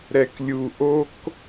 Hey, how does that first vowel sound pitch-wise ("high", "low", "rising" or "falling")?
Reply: low